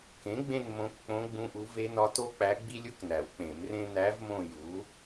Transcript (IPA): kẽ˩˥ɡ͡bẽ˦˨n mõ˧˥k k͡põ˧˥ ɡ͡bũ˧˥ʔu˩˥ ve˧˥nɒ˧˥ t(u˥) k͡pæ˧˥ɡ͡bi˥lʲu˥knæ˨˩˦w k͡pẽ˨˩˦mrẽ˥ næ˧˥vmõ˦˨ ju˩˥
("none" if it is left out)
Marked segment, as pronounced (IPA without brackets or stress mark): o˥